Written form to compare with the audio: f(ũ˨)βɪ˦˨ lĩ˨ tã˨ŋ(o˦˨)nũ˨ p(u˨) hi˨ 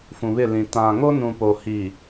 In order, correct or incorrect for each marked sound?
correct, incorrect, incorrect

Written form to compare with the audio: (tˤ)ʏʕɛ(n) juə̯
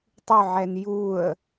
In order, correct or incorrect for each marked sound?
correct, correct

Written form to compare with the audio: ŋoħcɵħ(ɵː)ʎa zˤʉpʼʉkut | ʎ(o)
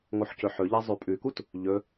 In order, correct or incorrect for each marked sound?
incorrect, incorrect

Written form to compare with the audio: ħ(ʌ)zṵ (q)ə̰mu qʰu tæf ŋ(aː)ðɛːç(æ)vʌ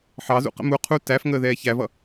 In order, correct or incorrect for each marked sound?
incorrect, correct, incorrect, correct

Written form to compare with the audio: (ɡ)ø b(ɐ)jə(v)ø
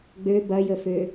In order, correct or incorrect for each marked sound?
incorrect, correct, incorrect

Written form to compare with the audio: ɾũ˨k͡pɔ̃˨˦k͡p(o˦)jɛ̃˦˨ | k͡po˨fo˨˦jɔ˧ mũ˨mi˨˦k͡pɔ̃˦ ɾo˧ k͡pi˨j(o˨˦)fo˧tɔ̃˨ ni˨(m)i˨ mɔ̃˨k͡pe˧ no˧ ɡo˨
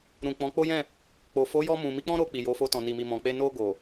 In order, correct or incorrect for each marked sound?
correct, correct, correct

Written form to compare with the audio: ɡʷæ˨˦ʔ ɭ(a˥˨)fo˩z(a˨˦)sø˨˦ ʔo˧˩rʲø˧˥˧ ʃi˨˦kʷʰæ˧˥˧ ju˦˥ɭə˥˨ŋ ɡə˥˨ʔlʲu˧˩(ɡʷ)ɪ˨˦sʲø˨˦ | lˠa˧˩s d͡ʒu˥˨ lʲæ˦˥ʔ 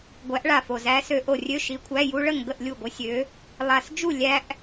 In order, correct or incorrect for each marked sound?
incorrect, incorrect, correct

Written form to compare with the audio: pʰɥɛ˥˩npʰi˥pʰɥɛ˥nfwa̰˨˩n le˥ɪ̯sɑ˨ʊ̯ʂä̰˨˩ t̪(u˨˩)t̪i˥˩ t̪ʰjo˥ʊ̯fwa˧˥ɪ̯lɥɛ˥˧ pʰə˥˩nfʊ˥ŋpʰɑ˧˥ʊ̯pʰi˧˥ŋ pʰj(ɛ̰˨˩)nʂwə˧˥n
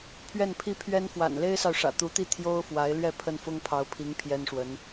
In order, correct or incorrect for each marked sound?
incorrect, incorrect

